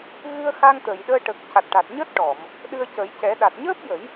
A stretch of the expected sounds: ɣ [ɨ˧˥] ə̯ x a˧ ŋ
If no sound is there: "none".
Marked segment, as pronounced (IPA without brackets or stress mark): ɨ˧